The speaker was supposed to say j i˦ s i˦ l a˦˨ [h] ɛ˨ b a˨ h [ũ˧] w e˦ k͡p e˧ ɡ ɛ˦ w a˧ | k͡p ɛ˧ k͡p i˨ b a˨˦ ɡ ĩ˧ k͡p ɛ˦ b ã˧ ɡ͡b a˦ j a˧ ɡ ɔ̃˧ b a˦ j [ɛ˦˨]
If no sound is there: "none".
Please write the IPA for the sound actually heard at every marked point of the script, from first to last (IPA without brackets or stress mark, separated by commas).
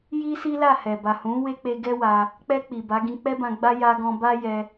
h, ũ˨˦, ɛ˧